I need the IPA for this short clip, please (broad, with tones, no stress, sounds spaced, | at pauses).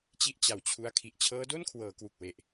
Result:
t͡ɕ i˥˩ ʔ t͡ɕ a˩˦ w t͡ɕʰ u˦˥ a̯ kʰ i˨˩ ʔ t͡ɕʰ ɤː˦˥ d o˥˩ n kʰ w ɤː˩˦ k w u˨˩ k̚ w e˨˩ ʔ